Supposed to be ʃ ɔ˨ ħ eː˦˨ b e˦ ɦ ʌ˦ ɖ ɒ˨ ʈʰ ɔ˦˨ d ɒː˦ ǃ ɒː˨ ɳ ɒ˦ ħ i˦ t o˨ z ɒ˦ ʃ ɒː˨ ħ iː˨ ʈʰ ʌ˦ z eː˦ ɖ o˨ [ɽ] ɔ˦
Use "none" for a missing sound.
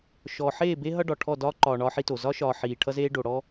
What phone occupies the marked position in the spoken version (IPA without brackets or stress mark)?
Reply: ɽ